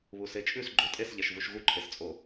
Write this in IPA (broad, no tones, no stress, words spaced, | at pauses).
βuset͡ʃʼʉs ɡ͡ǃotʼesʎɛʃ vuʃɣuǃʰest͡sʼo